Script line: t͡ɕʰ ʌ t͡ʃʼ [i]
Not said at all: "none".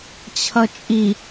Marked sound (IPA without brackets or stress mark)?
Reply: i